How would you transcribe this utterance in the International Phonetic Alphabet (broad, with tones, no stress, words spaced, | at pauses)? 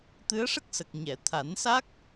t̪ɨ˧˥ə̯ʂə˦˥k̚sə˨˩k̚ ɲɛ˨˩˨t̪ʰa˨˩˦nsa˦˥k̚